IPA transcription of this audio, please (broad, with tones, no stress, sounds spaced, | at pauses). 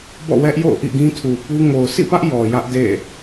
b ɔ̰˦˨ w ɛ˦ ʔ j o̰˦˨ ʊ̯ ʔ ḭ˦˨ ɡ ĩ˦ tʰ u˨ p u˦ ŋ o˨ ʊ̯ s ḭ˦˨ p ä˦ ʔ j ɔ˨ j ä˦ ʔ d ḛ˦˨